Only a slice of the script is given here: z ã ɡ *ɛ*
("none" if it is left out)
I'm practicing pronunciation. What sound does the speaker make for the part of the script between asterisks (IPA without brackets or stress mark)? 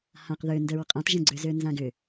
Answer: ʏ